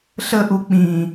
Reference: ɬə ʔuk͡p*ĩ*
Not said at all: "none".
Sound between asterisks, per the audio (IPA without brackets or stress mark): ĩ